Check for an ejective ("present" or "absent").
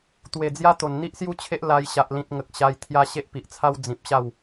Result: absent